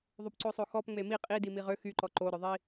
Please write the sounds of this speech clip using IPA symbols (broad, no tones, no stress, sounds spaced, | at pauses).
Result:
ðˤ o p ǀ o sˤ o x ɔ p ŋ͡m e m i qʼ i d i m i ʁ ø x y ǃ ɔ ǃ o ɾ œ ðˤ i